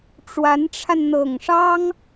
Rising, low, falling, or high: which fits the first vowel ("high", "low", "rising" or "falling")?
rising